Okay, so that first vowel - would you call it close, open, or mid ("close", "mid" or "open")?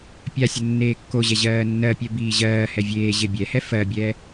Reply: open